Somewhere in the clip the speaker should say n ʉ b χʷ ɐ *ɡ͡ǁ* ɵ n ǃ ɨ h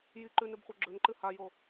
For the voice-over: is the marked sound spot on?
yes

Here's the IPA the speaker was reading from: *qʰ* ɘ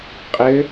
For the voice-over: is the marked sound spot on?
no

